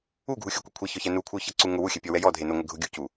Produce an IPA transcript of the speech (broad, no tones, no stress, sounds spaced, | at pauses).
u ɡʱ u xʲ u kʷ e kʷʰ e ç ɔ ç ɛ n u kʷʰ ɪ ʊ̯ ç ɛ ǀ u ŋ ʊ w u xʲ ɛ pʲ ɔ w ɛ j ɔ dʱ e n ʊ ŋʷ ɪ ɡʱ ʊ ɡʲ u c u